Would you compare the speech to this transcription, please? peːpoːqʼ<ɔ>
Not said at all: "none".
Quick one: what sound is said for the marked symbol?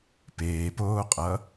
ʌ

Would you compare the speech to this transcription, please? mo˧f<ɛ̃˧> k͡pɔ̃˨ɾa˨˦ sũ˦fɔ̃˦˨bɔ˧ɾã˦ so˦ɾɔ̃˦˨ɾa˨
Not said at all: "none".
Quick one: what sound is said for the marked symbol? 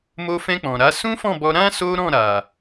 ɛ̃˧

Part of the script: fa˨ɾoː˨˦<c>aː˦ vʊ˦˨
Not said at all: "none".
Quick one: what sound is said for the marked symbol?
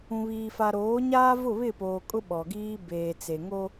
ɲ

